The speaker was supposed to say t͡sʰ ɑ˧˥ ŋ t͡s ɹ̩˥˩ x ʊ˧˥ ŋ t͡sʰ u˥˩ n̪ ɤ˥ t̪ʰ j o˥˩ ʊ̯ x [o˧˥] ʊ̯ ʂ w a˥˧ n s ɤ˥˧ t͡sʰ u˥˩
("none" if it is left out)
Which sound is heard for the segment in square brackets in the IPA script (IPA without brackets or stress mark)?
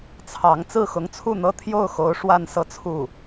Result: o˧˥